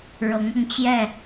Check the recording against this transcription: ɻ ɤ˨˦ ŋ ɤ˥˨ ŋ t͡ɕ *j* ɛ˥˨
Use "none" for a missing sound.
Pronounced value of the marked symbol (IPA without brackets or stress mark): j